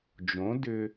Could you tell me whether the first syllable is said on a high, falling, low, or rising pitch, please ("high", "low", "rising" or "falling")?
rising